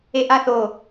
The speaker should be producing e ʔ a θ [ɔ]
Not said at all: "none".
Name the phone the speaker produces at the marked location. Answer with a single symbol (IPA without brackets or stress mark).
o